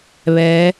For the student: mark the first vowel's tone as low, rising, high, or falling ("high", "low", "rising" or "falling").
rising